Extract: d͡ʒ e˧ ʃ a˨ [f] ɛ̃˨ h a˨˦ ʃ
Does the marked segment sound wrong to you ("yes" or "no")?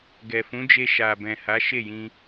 yes